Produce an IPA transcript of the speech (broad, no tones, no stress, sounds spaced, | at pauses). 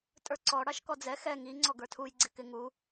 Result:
tʼ ə˞ ǀ ɔ ɽ ɑ ʃ k ɔ d͡z ɛ x ɛ ŋ i ŋ͡ǀ ɔ ɡ ə˞ tʰ u j ɡ͡ǀ ɪ k ɪ ŋ u